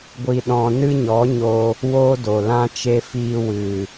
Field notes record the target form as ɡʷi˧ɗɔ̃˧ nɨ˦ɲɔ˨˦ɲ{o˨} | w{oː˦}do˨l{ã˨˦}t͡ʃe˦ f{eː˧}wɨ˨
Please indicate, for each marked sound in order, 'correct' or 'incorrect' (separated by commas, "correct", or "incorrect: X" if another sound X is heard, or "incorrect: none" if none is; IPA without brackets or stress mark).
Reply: incorrect: o˧, correct, incorrect: ã˦, incorrect: iː˧